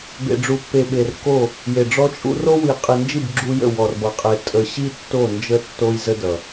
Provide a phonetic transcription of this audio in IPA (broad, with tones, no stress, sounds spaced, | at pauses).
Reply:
b ḛ˨ ɖ͡ʐ u˨ pː e˨ ɓ e˨ r k o˦˨ | j e˨ ɖ͡ʐ ɔ˦ t͡ʃʼ ṵ˦ r o˦ w i˨ qʼ i˨ n d͡ʒ i˦˨ b ɡ͡ǁ u˦ j ə̰˦˨ w ɔ˨ r b ʌ˨ qʼ e˨ tʼ ə˨ ɕ i˦ tː o˦˨ n d͡ʒ ə˦ tː o˦ j z ə˦ d ʌ˨